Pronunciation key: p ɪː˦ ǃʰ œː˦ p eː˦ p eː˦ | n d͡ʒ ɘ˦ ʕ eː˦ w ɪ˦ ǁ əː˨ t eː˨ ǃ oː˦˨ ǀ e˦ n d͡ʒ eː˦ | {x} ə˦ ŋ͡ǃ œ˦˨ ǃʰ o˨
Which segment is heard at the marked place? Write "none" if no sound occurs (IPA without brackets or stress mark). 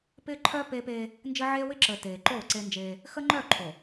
x